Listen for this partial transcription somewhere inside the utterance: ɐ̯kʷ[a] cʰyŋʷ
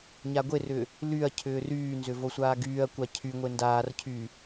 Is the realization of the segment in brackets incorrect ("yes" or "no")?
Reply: no